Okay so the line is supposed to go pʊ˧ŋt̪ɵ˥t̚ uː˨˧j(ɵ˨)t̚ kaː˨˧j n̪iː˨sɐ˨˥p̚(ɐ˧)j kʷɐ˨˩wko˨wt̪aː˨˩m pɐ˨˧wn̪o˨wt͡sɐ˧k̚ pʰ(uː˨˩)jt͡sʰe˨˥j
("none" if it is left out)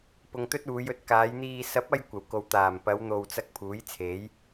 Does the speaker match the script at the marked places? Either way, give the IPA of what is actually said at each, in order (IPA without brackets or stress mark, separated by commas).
ɵ˧, ɐ˧, uː˨˥